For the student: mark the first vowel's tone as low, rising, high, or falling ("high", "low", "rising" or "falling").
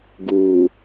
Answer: low